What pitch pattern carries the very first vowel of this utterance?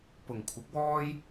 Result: low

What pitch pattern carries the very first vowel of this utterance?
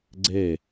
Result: falling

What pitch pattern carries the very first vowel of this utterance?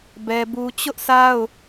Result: high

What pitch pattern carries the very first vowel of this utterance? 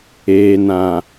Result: low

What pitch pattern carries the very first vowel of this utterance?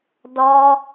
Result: high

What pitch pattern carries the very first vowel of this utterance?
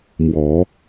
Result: low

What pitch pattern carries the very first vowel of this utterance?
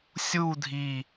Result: falling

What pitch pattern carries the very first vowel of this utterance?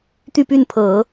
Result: falling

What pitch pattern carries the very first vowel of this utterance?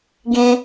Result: low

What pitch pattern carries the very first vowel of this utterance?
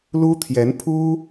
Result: high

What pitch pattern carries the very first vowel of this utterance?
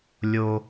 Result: low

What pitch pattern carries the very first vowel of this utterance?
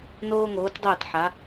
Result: high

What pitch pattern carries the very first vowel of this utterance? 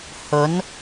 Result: rising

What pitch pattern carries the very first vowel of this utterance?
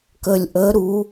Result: low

